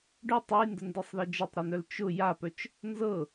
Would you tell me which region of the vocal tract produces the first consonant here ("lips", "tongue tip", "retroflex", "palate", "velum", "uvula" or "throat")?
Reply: retroflex